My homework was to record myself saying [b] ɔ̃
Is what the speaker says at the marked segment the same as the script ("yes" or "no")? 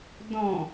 no